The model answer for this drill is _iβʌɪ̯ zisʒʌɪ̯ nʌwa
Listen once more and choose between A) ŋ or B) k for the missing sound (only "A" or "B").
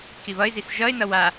B